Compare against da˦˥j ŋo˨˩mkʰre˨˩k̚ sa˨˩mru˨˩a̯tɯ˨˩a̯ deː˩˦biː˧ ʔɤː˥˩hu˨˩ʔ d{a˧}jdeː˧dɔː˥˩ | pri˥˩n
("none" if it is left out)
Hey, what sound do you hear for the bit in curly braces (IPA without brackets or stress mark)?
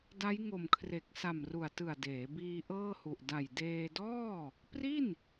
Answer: a˨˩